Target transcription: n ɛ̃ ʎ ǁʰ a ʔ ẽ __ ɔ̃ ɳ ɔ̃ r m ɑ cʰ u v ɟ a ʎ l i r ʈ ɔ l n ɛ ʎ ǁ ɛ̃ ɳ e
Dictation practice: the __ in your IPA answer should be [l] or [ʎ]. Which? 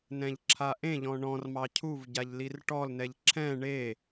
ʎ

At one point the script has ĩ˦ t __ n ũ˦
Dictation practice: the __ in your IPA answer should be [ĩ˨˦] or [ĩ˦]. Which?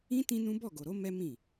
ĩ˦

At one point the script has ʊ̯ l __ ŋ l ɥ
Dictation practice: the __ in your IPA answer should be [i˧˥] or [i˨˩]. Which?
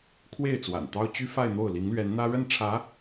i˧˥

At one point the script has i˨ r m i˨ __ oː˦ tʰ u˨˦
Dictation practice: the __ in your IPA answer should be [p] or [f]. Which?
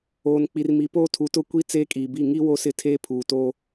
p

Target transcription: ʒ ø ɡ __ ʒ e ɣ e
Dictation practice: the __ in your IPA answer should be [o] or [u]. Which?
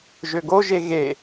o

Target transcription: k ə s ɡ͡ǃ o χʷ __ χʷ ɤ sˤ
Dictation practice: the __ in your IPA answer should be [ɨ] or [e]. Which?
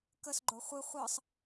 ɨ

